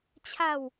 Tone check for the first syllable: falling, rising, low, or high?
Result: falling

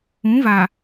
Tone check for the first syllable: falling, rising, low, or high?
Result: rising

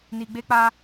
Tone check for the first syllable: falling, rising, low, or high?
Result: low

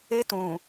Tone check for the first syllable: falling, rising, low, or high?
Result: high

